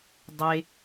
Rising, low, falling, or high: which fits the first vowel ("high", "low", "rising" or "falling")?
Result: high